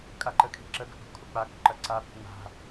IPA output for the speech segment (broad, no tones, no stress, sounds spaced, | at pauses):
kʼ a ǃ ə kʰ i̤ ǁ ə ɡ ə̤ ʔ ṳ kʰ u k͡p a k͡p ṳ ǃ ɐ ǀ a ɓ ṳ ŋ͡m a̤